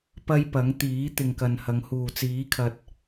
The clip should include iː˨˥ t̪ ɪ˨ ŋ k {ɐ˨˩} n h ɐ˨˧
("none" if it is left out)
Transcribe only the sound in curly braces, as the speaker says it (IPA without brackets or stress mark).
ɐ˨